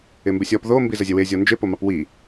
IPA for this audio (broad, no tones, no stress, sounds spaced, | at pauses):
ɪ m b ɪ sʲ ɔ p ð o m b i z ə zʲ ɛ w e zʲ ɔ n d͡ʒ ɪ p o m ɑ p w i